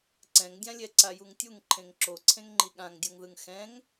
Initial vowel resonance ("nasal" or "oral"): nasal